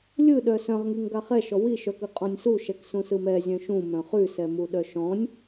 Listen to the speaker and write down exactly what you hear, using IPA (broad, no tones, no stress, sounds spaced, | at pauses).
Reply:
lʲ ɯ ɗ œ s œ̃ ʁ ŋ i ŋ ɡ a χ ɛ ʃ ɔ w i ʃ œ k ɯ qʼ ɔ̃ nʲ s u ʃ ɛ k s ũ s ɯ m ɛ zʲ œ̃ ʃ ũ m œ̃ χ ʉ s ɛ m u ɗ œ ʃ ɔ̃ nʲ